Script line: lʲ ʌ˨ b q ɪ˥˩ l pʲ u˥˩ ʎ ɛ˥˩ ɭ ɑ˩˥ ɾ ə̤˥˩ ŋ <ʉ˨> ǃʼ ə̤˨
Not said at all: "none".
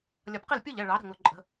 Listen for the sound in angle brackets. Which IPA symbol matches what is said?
ʊ˨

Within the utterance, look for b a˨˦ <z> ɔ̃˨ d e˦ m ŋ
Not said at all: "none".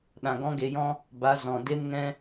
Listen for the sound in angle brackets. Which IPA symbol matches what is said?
z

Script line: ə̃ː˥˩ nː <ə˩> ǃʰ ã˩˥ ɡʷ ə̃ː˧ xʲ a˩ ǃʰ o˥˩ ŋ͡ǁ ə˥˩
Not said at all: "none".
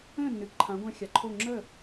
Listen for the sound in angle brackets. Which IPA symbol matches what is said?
ɨ˩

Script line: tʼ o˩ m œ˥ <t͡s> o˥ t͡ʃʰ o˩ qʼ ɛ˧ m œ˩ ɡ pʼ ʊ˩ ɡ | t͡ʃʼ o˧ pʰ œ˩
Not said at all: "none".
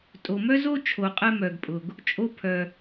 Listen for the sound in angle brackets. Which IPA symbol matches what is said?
z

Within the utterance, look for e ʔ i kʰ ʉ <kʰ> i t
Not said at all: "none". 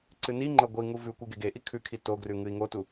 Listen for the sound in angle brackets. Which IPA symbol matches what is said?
kʰ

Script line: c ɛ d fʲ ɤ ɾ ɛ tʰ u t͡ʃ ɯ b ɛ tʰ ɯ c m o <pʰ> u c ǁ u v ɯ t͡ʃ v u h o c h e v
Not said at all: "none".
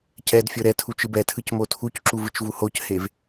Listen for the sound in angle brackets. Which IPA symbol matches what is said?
tʰ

